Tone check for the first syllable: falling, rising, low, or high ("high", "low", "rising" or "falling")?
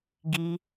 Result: high